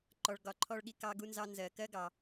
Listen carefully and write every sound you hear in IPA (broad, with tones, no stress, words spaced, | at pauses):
ǃɔ˨ɭɡɒ˨ǃʰɔ˦ɭɠi˨ kɑ˦ɡu˦nzɑ˦ nzɜ˨kɜ˥ɡɑ˨